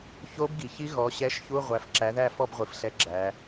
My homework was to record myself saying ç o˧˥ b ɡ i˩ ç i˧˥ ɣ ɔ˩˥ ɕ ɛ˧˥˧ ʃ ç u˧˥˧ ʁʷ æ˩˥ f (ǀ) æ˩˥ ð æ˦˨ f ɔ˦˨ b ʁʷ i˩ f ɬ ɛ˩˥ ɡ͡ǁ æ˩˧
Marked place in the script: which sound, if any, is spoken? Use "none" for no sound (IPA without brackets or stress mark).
ǁ